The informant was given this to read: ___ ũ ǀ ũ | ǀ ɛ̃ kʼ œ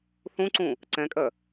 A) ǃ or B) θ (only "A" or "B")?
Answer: B